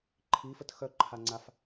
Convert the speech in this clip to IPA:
ǃʰ i f ə t x œ ǃʰ a ŋ͡ǀ a f

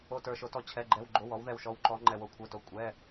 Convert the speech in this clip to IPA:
o˧˥˧ t ə˞˦˨ ʃ o˧˥ t ɔ˦˨ t͡ɕʰ ɛ˧˥˧ ɡ͡ǃ ɛ˧˥˧ w ɡ͡ǃ o˧˥˧ w ɔ˧˥ w ð ɛ˦˨ w ʃ ɔ˧˥ w ǃ ɔ˧˥ ŋ͡ǃ ɛ˦˨ w o˦˨ kʷʰ ə˞˧˥˧ t o˧˥ kʷʼ ɛ˧˥˧

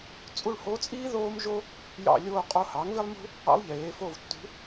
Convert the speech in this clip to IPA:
t͡sʼ u˦˨ ɭ h o˧˥ t͡sʼ iː˥ ð oː˥ m ʒ o˥ | j ɑ̰˦˨ lʲ oː˦˨ qʼ o˦˨ h ɑ˩˥ ŋ v i˥ lˠ m ṳ˥ | ɑ̰˧˥ lˠ ʎ eː˩˧ f o˦˨ v tː ṳ˧˥

